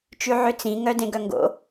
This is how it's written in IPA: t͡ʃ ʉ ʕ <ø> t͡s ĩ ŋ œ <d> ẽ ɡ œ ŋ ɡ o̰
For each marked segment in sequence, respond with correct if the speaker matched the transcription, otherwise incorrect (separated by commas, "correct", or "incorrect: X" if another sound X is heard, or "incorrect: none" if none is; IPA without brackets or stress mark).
correct, correct